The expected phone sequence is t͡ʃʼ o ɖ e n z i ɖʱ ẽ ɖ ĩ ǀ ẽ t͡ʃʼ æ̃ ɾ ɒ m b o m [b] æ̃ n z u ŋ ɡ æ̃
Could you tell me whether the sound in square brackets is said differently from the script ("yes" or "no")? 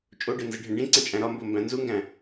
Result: no